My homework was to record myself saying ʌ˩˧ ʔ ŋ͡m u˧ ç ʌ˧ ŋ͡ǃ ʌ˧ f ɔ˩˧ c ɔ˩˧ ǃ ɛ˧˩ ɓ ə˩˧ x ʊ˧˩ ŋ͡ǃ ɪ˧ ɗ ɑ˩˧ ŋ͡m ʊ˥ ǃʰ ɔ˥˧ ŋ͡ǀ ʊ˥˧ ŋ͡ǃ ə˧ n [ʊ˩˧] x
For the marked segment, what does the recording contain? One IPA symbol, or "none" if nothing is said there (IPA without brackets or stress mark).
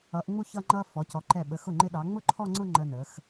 ə˩˧